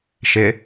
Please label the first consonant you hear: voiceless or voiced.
voiceless